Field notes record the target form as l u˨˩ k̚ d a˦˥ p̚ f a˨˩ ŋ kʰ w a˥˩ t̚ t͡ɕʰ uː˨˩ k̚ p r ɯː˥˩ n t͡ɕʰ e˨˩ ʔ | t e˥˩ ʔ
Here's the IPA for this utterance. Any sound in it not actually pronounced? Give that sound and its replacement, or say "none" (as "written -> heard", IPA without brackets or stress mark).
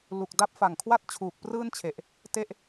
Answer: none